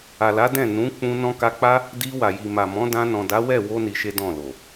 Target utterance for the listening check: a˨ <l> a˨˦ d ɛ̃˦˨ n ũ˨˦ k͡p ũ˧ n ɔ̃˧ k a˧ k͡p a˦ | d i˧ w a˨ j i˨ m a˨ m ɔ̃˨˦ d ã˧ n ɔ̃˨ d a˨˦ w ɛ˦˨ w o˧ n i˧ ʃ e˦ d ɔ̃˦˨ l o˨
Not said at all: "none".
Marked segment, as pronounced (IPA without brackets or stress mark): l